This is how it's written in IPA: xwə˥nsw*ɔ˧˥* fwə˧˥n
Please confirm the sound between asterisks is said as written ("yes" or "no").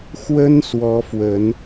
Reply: yes